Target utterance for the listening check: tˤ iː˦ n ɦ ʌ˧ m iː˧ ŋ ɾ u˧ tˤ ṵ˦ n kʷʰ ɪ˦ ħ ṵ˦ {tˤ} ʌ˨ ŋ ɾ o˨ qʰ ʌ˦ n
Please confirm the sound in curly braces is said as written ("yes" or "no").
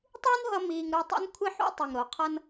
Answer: yes